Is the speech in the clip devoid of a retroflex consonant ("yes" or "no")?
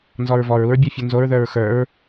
yes